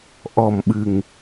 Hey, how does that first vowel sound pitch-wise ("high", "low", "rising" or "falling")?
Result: low